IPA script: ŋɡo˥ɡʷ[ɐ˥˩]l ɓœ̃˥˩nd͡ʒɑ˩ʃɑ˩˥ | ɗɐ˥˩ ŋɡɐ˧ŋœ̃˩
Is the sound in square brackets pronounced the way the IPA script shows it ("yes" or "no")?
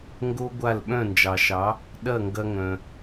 no